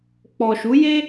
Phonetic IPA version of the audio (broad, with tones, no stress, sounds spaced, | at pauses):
k͡p ɔ˨ ʃ u˨˦ j e˦